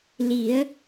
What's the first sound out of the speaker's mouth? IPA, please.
l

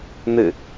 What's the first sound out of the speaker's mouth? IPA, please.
n̪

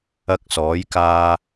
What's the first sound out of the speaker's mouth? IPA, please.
ɐ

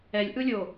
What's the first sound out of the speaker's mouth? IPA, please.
ɛ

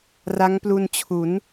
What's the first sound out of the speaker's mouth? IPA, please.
r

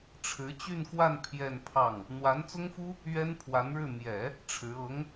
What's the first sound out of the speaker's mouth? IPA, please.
ʈ͡ʂʰ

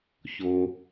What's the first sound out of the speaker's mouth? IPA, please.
ç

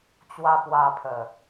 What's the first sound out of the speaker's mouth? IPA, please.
t͡ɕ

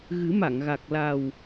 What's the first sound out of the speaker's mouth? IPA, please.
ɣ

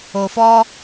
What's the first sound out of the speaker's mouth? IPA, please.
o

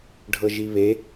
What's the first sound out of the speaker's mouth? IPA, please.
ɖʱ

